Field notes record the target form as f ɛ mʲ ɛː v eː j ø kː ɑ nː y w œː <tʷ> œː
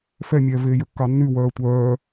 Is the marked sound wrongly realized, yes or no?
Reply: no